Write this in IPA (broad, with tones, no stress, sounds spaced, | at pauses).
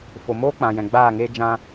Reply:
f o˨ m oː˦ k͡p ã˨ j ɛ̃˨ ɡ͡b aː˦˨ ŋ eː˦ d͡ʒ ã˧